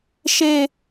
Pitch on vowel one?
low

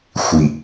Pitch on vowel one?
low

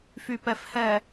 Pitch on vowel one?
low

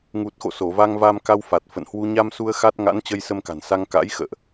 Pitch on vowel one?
low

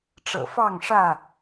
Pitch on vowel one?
low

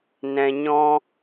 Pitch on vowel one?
low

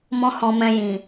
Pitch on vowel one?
high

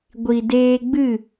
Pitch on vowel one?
low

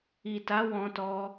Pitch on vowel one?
low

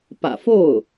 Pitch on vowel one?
low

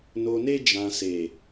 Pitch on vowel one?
low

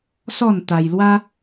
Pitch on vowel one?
falling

